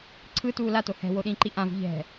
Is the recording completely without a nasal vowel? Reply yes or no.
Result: no